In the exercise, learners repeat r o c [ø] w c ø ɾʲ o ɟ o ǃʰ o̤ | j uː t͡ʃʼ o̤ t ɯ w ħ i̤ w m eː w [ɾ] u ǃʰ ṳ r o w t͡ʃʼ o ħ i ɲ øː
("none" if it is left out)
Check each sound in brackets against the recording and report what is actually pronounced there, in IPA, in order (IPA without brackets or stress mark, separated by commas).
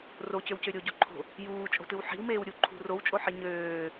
ø, ɾʲ